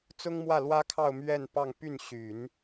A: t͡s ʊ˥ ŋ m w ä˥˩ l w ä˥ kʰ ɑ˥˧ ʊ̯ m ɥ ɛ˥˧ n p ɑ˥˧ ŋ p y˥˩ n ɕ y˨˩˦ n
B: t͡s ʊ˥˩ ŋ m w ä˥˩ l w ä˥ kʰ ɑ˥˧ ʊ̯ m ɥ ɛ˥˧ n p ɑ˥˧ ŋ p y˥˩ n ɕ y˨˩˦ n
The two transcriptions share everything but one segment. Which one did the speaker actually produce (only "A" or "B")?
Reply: A